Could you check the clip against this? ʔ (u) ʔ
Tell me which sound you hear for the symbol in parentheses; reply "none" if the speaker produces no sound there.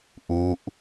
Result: u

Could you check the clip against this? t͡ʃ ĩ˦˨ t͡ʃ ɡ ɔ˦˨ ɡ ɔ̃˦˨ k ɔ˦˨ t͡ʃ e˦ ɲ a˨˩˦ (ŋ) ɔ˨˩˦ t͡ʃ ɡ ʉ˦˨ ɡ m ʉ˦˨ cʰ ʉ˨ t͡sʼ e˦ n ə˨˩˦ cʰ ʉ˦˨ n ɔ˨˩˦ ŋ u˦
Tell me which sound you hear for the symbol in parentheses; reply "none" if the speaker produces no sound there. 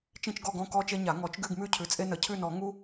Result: ŋ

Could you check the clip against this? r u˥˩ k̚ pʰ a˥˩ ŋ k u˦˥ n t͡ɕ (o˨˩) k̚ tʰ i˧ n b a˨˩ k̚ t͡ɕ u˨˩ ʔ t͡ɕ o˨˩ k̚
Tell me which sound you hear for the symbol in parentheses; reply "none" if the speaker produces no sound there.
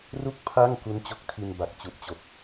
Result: o˦˥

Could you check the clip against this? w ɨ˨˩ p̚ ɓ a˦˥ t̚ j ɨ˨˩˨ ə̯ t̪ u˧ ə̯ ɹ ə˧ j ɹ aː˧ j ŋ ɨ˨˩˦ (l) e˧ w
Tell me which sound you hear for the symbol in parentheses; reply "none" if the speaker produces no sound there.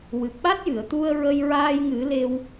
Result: l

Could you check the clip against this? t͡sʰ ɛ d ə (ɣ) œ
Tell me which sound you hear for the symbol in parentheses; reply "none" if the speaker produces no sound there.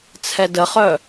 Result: χ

